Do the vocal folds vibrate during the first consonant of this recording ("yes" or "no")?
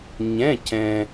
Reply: yes